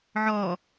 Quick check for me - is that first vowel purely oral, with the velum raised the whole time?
yes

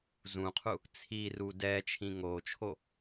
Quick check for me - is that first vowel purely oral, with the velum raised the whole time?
no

